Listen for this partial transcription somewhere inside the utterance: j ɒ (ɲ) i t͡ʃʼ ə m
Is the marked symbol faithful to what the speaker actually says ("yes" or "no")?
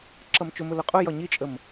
yes